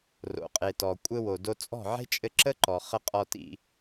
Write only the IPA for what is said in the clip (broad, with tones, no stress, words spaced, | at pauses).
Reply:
ro̰˨qʼe˨tɔ˨ kʷʼɘ˧wo˨do˧ t͡sʼɔ̤˦˨ʕe̤˦t͡ʃʼɘ˧ ǁə˦ǃɔ˨χə˧ qʼɔ˧tḭ˧